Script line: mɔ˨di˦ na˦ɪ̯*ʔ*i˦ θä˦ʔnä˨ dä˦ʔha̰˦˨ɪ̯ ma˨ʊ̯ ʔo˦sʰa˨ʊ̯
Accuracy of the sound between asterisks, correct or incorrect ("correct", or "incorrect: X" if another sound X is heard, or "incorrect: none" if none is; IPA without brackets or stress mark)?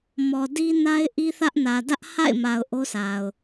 correct